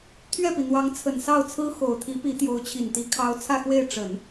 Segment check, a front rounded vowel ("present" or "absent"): absent